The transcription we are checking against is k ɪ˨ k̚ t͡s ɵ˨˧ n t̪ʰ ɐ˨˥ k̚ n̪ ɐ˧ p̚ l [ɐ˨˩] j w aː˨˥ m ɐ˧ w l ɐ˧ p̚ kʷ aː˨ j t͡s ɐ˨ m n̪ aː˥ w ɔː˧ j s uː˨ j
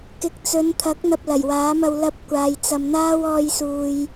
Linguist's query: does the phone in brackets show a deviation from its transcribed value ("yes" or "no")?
no